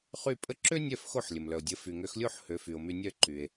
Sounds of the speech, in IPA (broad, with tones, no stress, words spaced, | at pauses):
χy˥˩pʼə˥ ǁø˥nʲœ˥˩f xo˥˩ħlʲə˩mlœ˩o̯ dʲə˩˥ fy˩ŋø˩˥xlʲo˥˩ħ hø˩˥fy˩o̯my˧nʲœ˥˩ ǃy˩e̯